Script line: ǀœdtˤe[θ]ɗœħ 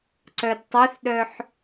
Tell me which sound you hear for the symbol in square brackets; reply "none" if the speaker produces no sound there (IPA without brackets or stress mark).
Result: θ